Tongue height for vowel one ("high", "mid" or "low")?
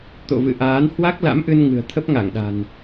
mid